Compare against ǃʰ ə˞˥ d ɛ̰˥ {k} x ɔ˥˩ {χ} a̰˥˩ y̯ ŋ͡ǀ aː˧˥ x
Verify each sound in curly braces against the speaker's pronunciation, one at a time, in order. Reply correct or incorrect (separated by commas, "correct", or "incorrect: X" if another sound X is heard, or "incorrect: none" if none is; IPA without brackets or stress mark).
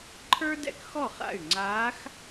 correct, correct